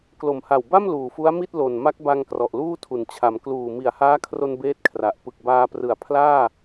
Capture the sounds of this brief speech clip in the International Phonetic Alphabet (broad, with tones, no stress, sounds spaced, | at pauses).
k l o˨˩ m h a˨˩ w b a˥˩ m l uː˨˩ f u˦˥ a̯ m i˥˩ t̚ l o˨˩ n m a˦˥ k̚ b a˧ ŋ k r ɔ˨˩ ʔ l uː˥˩ tʰ u˩˦ n t͡ɕʰ a˩˦ m k l uː˨˩ m i˨˩ a̯ h aː˦˥ kʰ r o˧ n b eː˥˩ t̚ kʰ r a˨˩ ʔ p ɯ˨˩ k̚ b aː˧ p r ɯ˨˩ a̯ pʰ l aː˥˩